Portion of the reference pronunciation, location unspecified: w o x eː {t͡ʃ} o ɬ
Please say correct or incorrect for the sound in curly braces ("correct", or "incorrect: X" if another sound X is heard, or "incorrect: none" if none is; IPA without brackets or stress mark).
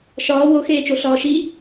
correct